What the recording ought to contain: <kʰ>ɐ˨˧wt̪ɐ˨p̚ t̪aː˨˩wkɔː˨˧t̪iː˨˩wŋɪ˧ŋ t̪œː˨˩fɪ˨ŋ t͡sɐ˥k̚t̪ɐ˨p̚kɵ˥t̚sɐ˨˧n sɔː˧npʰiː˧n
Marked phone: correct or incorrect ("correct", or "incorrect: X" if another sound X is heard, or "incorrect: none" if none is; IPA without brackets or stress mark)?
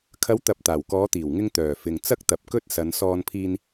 correct